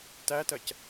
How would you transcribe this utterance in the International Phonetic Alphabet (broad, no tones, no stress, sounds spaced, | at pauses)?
t æ t ɜ c